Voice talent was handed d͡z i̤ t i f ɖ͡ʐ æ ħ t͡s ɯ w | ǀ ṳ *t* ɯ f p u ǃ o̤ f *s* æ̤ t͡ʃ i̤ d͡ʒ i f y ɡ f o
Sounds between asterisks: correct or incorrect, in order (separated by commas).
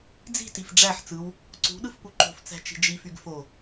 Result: incorrect, incorrect